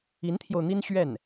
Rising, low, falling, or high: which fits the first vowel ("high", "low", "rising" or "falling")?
rising